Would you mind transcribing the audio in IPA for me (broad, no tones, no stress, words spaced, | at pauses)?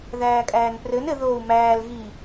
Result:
ðæːkʼæːnprɘn ɘ ðoːu̯mæːl ɣi